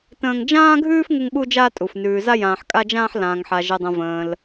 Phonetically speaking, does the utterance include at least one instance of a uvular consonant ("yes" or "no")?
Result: no